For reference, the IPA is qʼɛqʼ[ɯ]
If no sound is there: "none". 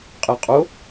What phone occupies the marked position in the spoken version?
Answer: ʊ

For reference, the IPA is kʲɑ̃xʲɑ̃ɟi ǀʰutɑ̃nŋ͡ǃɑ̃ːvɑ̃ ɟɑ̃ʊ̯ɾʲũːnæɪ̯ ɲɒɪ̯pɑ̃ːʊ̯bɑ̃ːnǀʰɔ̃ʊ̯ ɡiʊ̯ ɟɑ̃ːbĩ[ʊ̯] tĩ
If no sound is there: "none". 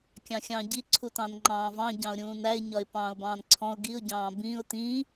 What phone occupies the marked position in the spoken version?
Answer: ʊ̯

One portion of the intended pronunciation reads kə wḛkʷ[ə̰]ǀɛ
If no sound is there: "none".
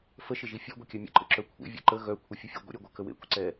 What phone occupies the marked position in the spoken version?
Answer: ə̰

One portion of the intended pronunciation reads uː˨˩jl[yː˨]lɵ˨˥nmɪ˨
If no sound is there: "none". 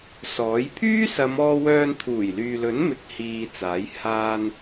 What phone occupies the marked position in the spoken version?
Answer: yː˨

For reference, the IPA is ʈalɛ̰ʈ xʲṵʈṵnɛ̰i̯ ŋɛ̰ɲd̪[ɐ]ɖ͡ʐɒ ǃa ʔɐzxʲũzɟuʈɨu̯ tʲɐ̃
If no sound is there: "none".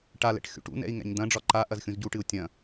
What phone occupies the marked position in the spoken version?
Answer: ɐ̃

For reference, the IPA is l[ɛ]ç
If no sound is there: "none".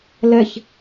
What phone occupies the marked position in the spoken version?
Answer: ɛ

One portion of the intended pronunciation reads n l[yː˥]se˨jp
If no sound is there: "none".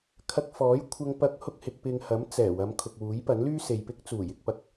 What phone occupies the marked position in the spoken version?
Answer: yː˥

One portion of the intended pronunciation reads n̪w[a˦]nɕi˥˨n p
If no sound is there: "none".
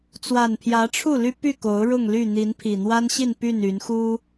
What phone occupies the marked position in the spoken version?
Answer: a˦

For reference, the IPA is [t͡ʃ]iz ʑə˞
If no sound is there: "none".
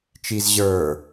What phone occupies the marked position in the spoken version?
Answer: t͡ʃ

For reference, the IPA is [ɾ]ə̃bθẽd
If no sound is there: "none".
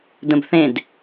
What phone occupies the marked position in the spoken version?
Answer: d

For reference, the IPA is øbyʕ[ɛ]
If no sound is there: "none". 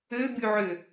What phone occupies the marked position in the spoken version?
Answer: ø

